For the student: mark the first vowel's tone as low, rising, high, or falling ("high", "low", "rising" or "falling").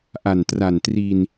low